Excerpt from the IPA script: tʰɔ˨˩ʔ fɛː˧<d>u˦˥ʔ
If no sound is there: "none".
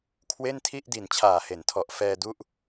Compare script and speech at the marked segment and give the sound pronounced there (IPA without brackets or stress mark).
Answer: d